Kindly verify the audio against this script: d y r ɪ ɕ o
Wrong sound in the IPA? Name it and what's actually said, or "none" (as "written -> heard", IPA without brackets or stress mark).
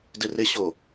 y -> ɪ